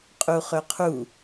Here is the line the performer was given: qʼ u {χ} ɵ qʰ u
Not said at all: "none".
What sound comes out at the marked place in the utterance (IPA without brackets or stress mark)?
χ